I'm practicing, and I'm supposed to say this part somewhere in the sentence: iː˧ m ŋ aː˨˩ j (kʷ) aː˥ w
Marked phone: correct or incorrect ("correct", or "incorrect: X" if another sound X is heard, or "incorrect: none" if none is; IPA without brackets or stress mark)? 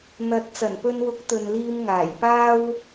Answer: incorrect: p